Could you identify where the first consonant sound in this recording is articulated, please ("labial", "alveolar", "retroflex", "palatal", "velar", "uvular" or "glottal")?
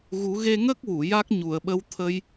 velar